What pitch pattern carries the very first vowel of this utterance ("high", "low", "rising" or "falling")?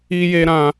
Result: high